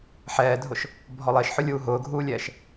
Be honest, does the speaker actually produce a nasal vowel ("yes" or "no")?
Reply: no